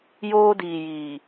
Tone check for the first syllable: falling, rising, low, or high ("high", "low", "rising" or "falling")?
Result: high